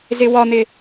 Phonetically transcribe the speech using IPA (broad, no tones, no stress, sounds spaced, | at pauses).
z ɪ w ɒ n̪ ɪ